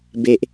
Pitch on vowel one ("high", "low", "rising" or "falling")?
low